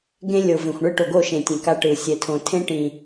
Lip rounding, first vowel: unrounded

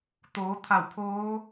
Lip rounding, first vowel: rounded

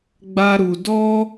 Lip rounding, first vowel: unrounded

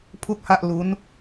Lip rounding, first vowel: rounded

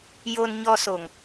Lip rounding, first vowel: rounded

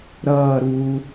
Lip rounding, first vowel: unrounded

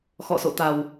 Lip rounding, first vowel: rounded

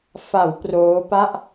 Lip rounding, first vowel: unrounded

